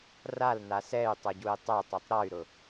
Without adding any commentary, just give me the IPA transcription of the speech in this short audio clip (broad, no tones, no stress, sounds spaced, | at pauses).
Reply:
r a l n a s ɛ y̯ tˤ œ ɟ u i̯ tˤ ɛ tˤ ɛ tˤ ɾ ɔ y̯ ɾ ʊ